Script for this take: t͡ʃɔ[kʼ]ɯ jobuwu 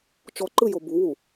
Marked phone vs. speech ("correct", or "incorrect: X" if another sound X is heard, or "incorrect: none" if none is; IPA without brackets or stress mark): incorrect: ǃ